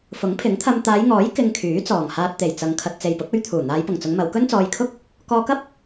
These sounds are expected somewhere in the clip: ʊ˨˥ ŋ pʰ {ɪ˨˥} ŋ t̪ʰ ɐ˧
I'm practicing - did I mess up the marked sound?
no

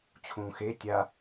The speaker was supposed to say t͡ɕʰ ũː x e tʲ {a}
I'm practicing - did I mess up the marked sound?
no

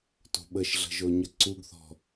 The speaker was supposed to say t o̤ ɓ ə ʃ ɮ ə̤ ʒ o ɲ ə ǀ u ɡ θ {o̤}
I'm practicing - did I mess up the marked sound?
yes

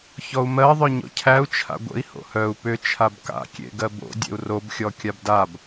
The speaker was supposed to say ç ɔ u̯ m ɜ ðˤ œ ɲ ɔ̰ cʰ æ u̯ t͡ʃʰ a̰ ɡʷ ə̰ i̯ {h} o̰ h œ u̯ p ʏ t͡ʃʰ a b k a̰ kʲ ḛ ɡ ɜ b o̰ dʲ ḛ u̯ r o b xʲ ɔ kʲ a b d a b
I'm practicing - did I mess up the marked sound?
no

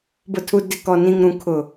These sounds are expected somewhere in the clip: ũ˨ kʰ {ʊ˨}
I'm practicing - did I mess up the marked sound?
no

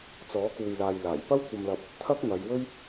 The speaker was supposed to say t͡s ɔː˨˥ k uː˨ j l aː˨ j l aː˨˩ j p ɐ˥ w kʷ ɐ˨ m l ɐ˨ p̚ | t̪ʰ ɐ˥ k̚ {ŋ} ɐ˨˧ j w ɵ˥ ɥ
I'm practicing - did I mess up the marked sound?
no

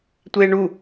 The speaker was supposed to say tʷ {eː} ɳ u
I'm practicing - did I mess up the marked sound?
no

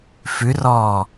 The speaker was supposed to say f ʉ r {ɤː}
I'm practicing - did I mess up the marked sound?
yes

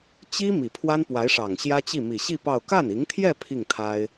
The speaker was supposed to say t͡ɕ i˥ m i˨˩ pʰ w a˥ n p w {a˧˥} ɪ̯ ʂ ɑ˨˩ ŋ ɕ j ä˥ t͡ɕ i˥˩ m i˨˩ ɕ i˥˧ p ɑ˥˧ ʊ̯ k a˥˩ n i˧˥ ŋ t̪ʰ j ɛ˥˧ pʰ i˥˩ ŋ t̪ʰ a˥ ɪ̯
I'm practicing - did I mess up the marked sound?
no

